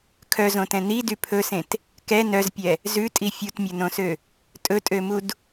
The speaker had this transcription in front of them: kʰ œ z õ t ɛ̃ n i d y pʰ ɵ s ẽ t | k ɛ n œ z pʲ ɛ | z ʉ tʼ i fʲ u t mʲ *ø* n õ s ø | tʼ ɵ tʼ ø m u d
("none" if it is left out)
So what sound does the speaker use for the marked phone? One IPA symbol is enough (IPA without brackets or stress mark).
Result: ɵ